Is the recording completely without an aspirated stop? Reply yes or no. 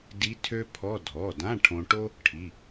no